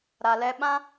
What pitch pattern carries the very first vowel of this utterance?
low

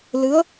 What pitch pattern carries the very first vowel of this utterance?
rising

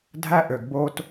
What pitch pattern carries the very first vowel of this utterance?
high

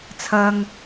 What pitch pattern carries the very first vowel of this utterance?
high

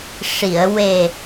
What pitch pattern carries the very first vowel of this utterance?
low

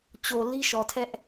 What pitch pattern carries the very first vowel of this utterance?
low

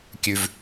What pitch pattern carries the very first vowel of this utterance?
low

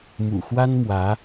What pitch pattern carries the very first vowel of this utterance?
low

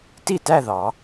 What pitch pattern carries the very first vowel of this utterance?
falling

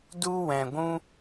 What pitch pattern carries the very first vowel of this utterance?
high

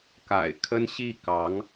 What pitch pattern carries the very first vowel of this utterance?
low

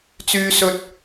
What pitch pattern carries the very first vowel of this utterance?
high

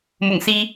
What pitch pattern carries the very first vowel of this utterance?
low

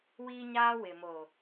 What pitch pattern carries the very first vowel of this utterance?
high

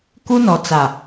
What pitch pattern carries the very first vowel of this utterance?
high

